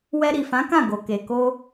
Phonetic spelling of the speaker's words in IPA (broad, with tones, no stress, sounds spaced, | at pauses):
w ɛ˧ ɾ i˨ f ã˨˦ k ã˦˨ ɡ o˨ k e˨ k o˧